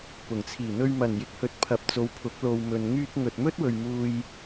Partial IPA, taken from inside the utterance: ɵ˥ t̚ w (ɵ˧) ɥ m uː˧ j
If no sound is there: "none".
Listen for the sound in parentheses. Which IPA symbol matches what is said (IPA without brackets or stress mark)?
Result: ɵ˨